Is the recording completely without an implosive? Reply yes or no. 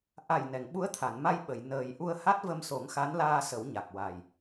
no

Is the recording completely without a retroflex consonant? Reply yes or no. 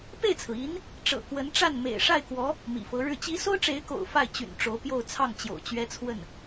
no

